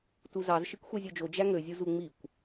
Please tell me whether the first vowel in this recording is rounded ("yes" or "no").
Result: yes